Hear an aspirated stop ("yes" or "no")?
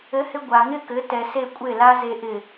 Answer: no